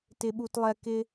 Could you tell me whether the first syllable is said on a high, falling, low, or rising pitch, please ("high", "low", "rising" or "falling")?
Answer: high